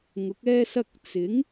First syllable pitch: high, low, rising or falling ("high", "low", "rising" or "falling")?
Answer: rising